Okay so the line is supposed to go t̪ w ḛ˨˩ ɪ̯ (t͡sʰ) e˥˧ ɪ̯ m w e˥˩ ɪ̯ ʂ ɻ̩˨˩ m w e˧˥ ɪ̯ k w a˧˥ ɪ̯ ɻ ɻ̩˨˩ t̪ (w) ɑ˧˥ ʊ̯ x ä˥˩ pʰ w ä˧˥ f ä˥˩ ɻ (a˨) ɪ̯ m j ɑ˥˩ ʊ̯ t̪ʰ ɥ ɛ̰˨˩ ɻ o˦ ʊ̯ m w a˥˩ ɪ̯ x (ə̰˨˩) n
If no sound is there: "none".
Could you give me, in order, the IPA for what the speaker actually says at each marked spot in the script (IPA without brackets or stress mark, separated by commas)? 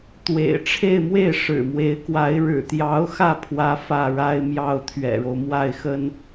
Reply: ʈ͡ʂʰ, j, a˥, ə˥